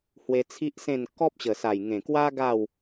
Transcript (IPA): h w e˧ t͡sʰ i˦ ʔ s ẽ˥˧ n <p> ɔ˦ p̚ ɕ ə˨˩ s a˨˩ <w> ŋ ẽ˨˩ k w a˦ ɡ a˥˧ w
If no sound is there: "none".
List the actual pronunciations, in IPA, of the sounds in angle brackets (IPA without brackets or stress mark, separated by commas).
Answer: k, j